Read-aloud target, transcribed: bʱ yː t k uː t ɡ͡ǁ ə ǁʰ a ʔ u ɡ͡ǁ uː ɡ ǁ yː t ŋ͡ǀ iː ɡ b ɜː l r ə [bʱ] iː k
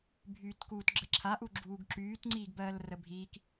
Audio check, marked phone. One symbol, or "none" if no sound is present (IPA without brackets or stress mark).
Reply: bʱ